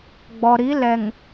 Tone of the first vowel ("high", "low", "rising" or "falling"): low